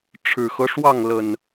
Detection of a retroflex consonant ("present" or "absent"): present